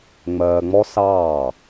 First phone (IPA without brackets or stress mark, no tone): ŋ͡m